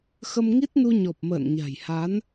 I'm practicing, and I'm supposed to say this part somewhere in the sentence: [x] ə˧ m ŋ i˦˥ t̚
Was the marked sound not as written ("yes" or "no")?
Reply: no